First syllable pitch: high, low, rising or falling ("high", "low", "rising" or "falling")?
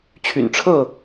low